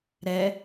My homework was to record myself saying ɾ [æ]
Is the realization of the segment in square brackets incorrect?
yes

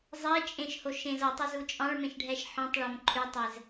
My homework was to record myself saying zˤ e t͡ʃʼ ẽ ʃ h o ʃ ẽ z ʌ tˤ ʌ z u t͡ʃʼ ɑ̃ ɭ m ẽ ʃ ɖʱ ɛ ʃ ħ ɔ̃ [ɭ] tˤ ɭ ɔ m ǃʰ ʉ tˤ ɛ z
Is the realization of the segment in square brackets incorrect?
yes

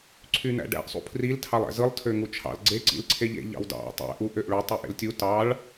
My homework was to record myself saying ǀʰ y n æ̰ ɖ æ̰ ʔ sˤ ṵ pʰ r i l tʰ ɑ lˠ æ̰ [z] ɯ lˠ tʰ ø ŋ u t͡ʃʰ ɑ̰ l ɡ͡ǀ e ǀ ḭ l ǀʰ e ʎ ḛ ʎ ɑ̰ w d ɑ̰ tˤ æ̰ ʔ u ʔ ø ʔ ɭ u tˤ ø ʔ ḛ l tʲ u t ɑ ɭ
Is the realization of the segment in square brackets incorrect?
no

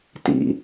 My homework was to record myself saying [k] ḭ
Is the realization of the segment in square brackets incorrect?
yes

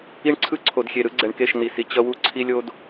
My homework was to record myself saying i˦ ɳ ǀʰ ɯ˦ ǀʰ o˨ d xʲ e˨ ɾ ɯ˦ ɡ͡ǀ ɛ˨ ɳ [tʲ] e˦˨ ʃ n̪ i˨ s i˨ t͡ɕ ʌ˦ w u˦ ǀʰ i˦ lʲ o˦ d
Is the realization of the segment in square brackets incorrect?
yes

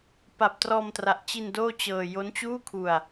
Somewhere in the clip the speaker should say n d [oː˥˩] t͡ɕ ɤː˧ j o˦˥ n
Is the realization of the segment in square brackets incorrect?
no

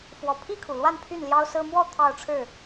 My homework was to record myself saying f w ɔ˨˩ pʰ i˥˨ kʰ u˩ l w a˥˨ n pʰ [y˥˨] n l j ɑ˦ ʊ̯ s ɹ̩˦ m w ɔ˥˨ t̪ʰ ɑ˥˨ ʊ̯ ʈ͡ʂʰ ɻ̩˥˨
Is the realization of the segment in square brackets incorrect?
no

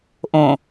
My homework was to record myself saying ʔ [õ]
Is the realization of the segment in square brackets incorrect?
no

